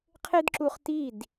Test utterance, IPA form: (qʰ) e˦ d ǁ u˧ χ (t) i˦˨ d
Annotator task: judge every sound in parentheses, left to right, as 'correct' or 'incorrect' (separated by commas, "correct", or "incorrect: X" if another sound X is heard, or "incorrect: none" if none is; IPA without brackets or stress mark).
correct, correct